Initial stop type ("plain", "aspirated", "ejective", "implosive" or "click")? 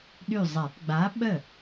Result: implosive